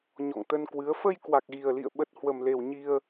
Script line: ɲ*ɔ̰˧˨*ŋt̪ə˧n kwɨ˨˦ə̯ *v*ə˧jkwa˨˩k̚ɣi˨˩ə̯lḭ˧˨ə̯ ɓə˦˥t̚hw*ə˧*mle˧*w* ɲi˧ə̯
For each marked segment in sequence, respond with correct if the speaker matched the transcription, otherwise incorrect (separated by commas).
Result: correct, incorrect, correct, correct